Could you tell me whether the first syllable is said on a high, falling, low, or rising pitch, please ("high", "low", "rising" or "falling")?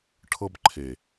high